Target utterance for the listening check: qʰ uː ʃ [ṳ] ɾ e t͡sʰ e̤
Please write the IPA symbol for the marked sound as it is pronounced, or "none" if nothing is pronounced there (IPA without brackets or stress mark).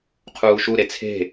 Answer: u